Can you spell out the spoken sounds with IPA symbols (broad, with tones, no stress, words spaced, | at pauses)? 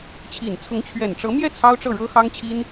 t͡ɕʰi˨˩n t͡sʰʊ˧˥ŋt͡ɕʰɥɛ˨˩n ʈ͡ʂɤ˧˥mjɛ˥˩ t͡sʰɑ˥ʊ̯ʈ͡ʂɤ˥˩ ɻɤ˥xɑ˥ŋt͡ɕʰi˥n